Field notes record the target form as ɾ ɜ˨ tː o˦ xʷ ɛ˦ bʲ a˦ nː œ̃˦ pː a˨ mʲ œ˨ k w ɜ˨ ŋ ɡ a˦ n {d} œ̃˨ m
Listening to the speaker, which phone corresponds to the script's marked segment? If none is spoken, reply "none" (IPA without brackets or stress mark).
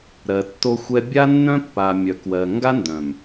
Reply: d